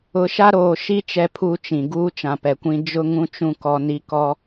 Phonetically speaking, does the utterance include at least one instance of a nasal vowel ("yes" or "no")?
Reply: yes